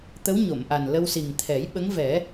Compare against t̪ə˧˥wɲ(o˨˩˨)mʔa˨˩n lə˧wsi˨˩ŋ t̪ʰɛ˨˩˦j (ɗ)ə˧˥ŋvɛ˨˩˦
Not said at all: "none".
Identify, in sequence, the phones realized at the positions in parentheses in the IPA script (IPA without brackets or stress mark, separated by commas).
o˨˩˨, ɓ